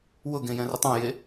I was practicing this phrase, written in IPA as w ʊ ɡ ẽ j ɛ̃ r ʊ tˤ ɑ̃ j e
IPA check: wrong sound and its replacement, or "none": none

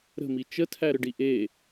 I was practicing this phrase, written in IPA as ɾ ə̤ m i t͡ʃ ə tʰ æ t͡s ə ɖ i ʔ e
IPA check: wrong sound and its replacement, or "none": t͡s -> ɾ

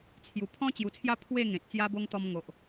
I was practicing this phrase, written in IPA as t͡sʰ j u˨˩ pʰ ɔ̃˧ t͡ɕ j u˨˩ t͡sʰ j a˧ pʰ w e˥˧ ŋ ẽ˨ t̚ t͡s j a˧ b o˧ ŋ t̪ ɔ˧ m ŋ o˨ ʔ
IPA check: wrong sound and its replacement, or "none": none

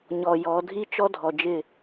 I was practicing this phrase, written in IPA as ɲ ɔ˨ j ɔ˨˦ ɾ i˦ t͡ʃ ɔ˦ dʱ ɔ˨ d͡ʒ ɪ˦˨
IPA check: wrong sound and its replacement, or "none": ɾ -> dʱ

